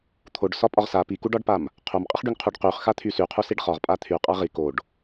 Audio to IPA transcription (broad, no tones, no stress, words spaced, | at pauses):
t̪ʰoɖsɒpʼɒʁ sa pikuɖɒɖpam | qʰomqʼɪχɖyŋqʰuɖ qyχxat̪ʰy syqʰusiɖ χɒʁpʼa t̪ʰyqʼa ʁi koɖ